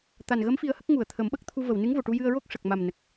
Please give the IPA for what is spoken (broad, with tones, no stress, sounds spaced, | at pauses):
t̪ a˨˩ n ɣ ə˧˥ m f i˧ ə̯ h ə˦˥ k̚ ŋ u˨˩˨ ə̯ t̪ʰ ə˨˩˦ m ɓ ə˦˥ k̚ t̪ʰ u˧ v ə˨˩˨ w n ɨ˧˥ ŋ v o˨˩˨ ʈ u˧ j ɨ˧ ə̯ ɹ o˦˥ k̚ ʂ ə˨˩ k̚ m a˨˩ m n ə˨˩ k̚